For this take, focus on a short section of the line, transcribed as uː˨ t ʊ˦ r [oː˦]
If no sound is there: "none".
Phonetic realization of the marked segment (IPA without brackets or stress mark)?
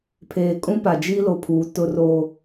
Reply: oː˦